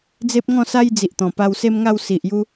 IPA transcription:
d͡z e˦ p̚ ŋ ɔ̃˥˧ s a˦ j d͡z i˨ ʔ t̪ ɔ̃˨˩ p a˧ w s e˦ m ŋ a˥˧ w s i˨ ʔ j u˦

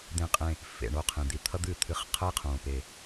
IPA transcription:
d̪ ẽ˧˩ qʼ ẽ˧˩ | f ḛ˧˩ ɳ o˥˩ qʰ ẽ˩ d̪ i˧ t̪ʰ ʌ˥ d̪ ɨ˥˩ t̪ʰ ɨ˧˥ χ qʰ ə˥ i̯ qʰ õː˩ p e˩

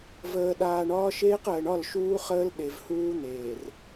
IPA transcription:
v əː˨ ɗ aː˨ ɳ ɒː˦ ʃ eː˦ q əː˨ ɳ ɒ˦˨ l ʃ uː˦ χ əː˦ l ɗ e˨ v h uː˦ n̪ eː˨ r

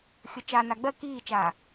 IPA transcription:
xʲ ɵ t͡ʃ a n a ɡ͡b ɜ k iː t͡ʃ aː

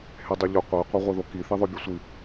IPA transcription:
h e dˤ e ʎ ɵ qʷ e qʷ e ʁʷ e ð o k i θ i ðˤ œ bʲ ɵ sʷ i

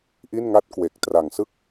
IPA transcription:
ʔ i˥˩ n ŋ a˥˩ t̚ k w e˨˩ k̚ t r a˨˩ ŋ s ɯ˥˩ k̚

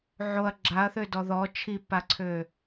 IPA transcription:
ʕ o ɐ̯ ɡ͡ǁ a ɐ̯ θ ø d ɔ ð ɔ t͡ʃʰ i p a ǀʰ ø

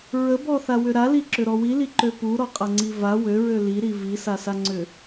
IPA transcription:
ɹ ə b ɔ θ a w ʏ ɾ a l i ǁ ʏ ɾ ɔ w i l i ǃ ø p u ɾ ɔ qʼ a ŋ͡ǀ i v a w ø ɹ ø l i ɾ i v i s a s a ŋ͡ǀ ʏ

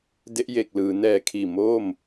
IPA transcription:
d e˦˥ ʔ j e˨˩ k̚ l ɯː˩˦ n ɛː˨˩ kʰ iː˨˩ m oː˥˩ m

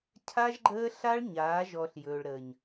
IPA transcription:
cʰ a˦ ʒ ɡ͡ǃ əː˦ ɬ a˦ ɭ ɲ aː˨˦ ʒ ɔ˨ ɬ j ɵː˨ ɭ ɾ əː˨ ɲ

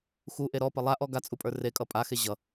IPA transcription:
x u ʔ e ɾ ɔ p ʌ lˠ a ʔ ɔ ɡ a t͡sʼ u pʼ ə˞ r e kʼ ʌ pʼ a x e ʑ ʌ

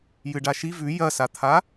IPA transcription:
j ɨ ɖ a ʃ i v ʉ j ɐ s a t̪ʰ a

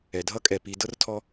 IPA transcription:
ɛ˨ dʱ ʌ˦ kʼ ɛ˨ p i˨ d ɤ˦ r tʰ ɔ˦

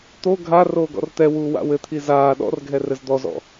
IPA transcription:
t̪ o ɡʱ a r oː ɡ ɔ̰ r t̪ ɛ w uː w a̰ w ɘ t̪ʰ i z aː ɗ ɔ̰ r ɡʱ ɛ r ɘ z d̪ ɔ z ɔ̰

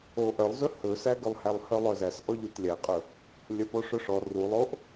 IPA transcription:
o ʔ œ lˠ z ɵ h ɵ s æ ɡ ɵ lˠ h æ lˠ h œ lˠ œ z æ s ʔ ɔ ʎ u t lʲ æ qʼ ɵ | lʲ œ p o ʂ ɵ ʂ ɔ r u lˠ o ʔ

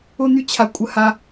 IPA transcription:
ʊ˥ n̪ y˥ t͡ɕʰ a˧ kʷʼ ə˧ h a˧

